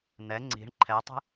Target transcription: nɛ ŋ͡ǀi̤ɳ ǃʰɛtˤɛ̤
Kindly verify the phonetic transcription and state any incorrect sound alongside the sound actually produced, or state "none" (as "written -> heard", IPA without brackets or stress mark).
none